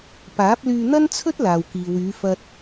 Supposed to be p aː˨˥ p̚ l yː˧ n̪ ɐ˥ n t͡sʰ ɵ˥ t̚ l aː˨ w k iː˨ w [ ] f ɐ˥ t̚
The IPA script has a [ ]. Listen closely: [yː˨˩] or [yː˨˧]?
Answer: yː˨˧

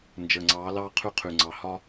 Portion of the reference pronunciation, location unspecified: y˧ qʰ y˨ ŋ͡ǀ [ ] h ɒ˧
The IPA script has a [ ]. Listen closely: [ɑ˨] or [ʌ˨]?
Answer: ɑ˨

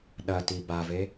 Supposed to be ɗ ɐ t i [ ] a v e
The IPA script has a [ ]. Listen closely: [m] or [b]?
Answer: b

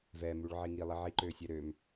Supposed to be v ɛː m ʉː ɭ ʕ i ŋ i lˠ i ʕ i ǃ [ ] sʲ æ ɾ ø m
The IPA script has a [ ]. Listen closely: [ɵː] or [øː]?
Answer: øː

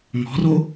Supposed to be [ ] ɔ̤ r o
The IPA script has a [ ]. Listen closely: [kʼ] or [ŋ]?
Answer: ŋ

